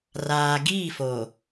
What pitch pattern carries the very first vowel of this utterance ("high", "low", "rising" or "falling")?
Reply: low